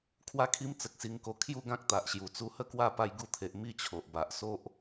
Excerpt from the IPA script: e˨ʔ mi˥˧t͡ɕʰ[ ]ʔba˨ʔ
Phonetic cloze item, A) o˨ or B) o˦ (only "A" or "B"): A